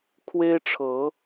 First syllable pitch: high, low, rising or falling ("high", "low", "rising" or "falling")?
high